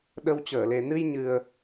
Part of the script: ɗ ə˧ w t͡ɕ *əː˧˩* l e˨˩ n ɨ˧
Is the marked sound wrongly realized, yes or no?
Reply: no